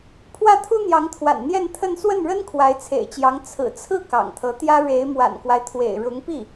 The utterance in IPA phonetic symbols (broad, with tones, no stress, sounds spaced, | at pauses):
pʰ w ä˥˩ t̪ʰ u˥ n̪ j ɑ˧˥ ŋ t̪ʰ w a̰˨˩ n n̪ j ɛ˥˧ n t̪ʰ ə˥˧ n s w ə˥˩ n ɻ ə˥ n kʰ w a˧˥ ɪ̯ t͡sʰ ḛ˨˩ ɪ̯ t͡ɕ j ɑ˧˥ ŋ t͡sʰ ɹ̩˨˩ t͡sʰ ɹ̩˥˩ k ɑ̰˨˩ ŋ t̪ʰ ɤ˧˥ t̪ j ä˥ ɻ e˧˥ ɪ̯ m w a̰˨˩ n k w a˦ ɪ̯ t̪ʰ w ḛ˨˩ ɪ̯ ɻ ʊ˧˥ ŋ p i˥˩